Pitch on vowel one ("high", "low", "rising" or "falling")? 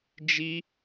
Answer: high